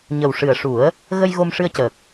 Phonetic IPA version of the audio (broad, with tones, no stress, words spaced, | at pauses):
ɲə˨˩w ʂɨ˨˩ə̯ʂu˨˩˦ə̯ | ɣə˧j ɣo˧mʂɨ˧ə̯cəː˨˩k̚